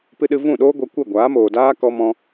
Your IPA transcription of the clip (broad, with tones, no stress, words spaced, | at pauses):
pɨ˦ɗɨ˦ vũ˦˨ɗoː˦ɡʷɛ˧ kʷɛ˦˨ɡʷaː˨˦moː˨daː˦ kɔ˧mɔ̃˧